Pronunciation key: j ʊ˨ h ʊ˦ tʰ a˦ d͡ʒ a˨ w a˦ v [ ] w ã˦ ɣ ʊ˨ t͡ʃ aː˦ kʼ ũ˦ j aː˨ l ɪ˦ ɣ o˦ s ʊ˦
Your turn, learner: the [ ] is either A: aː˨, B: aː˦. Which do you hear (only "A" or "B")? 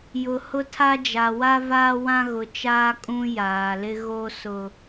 B